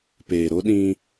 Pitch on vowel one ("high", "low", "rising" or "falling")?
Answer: low